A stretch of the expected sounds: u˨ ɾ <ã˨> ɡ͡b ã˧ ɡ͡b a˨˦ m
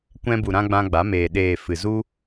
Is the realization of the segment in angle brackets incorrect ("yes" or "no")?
yes